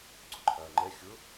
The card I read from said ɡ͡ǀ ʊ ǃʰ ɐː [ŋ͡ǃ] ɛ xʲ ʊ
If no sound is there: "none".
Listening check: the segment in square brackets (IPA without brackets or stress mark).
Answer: ŋ͡ǃ